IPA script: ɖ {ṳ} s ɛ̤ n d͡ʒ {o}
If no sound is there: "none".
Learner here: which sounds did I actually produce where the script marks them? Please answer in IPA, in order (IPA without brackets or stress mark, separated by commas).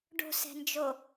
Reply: o̤, o